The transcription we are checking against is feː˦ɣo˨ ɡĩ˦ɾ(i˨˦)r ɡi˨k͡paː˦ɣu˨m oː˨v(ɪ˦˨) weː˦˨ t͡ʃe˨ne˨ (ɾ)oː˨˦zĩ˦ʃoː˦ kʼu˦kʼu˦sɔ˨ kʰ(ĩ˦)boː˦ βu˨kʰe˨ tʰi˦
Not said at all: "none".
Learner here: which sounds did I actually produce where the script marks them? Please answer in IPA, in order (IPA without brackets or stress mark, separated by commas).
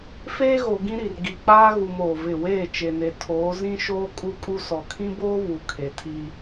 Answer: i˨, ɪ˦˨, tʰ, ĩ˦